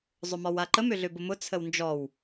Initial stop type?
click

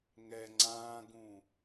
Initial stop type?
click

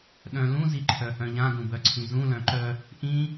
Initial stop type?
implosive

